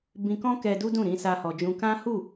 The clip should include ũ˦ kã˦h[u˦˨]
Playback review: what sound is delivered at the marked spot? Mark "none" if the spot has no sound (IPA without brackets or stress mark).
u˦˨